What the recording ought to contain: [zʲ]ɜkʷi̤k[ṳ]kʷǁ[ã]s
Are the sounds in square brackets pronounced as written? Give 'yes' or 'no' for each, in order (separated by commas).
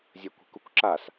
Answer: yes, no, no